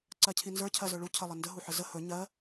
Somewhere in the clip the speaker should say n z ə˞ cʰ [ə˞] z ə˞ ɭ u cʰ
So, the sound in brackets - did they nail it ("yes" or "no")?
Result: no